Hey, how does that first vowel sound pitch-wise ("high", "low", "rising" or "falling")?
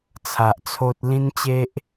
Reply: low